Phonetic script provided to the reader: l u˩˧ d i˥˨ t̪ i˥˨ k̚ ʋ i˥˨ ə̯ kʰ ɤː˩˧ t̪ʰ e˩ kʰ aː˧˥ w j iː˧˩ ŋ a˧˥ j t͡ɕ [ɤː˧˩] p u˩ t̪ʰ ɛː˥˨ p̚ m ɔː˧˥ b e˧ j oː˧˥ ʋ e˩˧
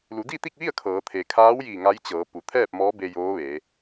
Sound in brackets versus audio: incorrect: ɤː˩˧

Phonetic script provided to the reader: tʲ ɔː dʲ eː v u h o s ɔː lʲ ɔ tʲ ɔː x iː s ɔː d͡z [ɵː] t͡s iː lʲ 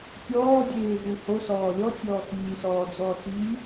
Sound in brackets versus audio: incorrect: ɔː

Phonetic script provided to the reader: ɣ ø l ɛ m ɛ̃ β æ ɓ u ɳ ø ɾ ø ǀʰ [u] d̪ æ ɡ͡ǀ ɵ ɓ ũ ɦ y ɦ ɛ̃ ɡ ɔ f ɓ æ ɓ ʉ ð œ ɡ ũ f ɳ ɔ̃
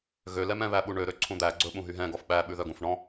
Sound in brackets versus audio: incorrect: ũ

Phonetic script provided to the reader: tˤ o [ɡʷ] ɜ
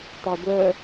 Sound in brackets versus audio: correct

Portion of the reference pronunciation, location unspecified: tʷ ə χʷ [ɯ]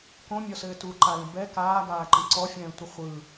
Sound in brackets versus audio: correct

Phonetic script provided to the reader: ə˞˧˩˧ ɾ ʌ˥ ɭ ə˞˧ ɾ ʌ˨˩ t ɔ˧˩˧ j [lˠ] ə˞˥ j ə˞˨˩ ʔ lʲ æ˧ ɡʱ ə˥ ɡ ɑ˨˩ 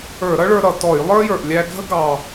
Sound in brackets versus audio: correct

